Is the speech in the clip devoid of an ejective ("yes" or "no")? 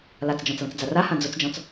yes